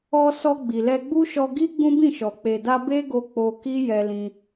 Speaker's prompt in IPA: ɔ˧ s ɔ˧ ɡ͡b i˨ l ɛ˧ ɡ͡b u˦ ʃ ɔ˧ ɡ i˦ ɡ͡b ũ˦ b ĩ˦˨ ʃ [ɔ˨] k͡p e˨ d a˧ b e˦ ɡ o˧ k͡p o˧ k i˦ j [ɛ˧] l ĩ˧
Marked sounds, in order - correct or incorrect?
correct, correct

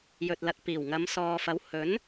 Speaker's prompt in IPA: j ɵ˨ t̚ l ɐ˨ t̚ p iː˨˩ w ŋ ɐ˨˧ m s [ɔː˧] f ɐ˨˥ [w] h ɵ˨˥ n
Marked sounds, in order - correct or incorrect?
incorrect: ɔː˨, correct

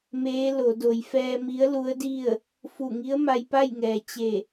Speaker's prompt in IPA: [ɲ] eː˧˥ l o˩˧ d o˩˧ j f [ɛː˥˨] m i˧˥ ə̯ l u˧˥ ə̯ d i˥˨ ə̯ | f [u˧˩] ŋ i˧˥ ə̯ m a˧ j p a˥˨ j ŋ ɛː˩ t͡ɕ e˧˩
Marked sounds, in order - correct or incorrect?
incorrect: m, incorrect: ɛː˧, correct

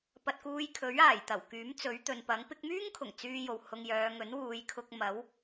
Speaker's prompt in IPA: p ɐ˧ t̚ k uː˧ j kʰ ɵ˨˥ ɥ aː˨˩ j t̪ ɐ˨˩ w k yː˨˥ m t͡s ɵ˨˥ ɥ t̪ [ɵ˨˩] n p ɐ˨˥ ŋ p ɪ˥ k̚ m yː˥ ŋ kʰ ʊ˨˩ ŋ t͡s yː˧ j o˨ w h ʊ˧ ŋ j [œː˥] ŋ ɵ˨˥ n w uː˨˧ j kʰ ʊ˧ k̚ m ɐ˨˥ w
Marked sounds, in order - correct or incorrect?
incorrect: ɵ˨, incorrect: œː˨˧

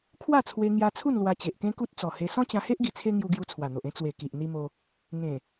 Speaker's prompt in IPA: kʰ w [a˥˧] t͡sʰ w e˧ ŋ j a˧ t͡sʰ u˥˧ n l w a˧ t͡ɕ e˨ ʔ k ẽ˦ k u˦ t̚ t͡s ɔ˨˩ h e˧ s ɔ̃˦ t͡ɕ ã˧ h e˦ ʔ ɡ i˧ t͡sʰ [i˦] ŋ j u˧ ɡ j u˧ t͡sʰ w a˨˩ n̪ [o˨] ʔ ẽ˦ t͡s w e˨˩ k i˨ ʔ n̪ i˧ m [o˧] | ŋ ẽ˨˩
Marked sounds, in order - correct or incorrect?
correct, incorrect: e˦, correct, correct

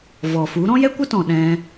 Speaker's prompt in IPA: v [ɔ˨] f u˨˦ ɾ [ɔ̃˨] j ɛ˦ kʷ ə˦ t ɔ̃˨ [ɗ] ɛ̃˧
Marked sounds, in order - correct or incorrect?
correct, incorrect: ɔ̃˦, correct

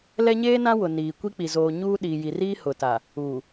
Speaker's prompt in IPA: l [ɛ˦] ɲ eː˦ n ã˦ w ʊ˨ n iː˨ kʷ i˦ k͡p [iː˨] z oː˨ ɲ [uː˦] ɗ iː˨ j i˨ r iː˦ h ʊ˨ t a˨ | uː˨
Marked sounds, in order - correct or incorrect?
correct, incorrect: i˨, correct

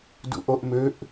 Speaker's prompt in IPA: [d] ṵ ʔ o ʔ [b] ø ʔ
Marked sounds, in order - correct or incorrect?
correct, incorrect: m

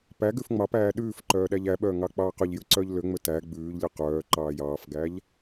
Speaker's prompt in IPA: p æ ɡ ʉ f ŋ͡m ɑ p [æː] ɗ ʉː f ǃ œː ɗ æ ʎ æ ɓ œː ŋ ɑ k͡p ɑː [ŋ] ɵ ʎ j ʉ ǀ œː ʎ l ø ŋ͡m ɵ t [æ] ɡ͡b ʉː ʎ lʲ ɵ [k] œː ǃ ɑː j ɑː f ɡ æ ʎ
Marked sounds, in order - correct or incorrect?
correct, incorrect: q, correct, incorrect: q

